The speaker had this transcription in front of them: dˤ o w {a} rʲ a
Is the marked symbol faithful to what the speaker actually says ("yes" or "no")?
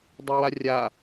yes